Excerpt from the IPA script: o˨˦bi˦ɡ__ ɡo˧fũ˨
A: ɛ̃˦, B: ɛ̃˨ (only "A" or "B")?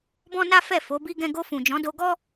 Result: A